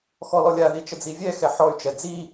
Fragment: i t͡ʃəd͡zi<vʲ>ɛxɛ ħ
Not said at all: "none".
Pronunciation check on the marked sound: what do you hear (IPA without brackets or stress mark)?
vʲ